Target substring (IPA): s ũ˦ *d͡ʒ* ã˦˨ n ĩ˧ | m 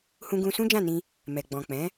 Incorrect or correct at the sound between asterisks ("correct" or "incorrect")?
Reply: correct